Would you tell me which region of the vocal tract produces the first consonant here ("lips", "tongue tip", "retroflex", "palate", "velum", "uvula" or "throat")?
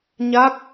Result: palate